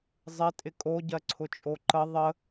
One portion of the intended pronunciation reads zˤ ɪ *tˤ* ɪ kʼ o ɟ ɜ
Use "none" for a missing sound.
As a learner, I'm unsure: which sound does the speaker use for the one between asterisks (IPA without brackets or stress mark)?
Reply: tʼ